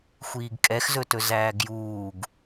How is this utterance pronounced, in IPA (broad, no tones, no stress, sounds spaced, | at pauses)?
xʷ iː ɡ kʼ ɛ x z ɵ t ɵ z æː ɡ j uː ɡ